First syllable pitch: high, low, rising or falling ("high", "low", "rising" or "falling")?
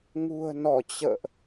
low